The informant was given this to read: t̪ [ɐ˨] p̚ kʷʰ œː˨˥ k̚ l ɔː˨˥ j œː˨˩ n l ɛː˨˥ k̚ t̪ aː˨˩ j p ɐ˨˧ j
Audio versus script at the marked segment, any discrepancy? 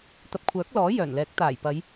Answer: no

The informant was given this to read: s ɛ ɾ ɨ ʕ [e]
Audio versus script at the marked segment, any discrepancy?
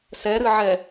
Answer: yes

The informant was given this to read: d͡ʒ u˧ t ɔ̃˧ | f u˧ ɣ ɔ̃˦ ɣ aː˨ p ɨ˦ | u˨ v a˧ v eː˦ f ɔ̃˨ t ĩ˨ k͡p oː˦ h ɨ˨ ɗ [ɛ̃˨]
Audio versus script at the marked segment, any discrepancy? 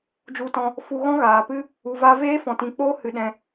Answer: yes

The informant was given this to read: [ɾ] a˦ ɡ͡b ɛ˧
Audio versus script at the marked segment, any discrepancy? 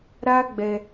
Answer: no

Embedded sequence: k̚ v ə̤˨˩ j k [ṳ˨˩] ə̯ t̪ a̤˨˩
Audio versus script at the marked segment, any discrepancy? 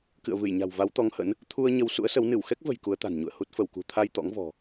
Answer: yes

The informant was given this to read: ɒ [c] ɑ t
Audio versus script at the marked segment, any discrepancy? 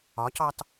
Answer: no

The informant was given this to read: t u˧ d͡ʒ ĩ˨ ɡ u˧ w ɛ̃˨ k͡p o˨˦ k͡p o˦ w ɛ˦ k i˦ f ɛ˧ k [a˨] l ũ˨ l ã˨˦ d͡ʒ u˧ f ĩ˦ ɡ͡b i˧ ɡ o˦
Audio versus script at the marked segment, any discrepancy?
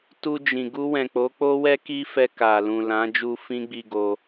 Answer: no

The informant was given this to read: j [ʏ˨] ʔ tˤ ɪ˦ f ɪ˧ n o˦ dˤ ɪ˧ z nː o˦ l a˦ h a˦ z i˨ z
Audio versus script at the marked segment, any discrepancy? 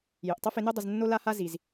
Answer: no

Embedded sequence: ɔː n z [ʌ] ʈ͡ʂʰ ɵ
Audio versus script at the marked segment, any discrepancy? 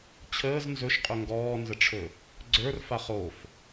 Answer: yes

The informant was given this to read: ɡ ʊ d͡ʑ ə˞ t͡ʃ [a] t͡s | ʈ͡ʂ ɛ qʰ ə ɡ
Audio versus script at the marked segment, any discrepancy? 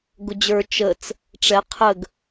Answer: yes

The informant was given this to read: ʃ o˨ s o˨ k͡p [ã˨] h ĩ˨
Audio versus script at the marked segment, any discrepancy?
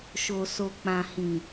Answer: no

